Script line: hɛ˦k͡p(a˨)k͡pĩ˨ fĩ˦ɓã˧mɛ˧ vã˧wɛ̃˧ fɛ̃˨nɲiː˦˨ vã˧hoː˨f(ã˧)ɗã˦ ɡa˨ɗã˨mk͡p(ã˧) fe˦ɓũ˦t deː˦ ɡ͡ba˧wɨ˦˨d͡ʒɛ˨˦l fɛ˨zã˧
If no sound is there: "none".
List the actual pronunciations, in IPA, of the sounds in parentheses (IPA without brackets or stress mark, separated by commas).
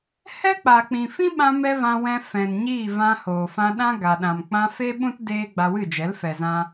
a˨, ã˧, ã˧